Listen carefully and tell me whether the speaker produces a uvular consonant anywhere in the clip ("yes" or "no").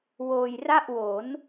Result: no